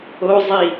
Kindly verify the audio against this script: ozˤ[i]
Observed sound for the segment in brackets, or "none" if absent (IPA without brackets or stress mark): i